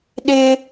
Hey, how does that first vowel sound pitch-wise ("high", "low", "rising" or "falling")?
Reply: high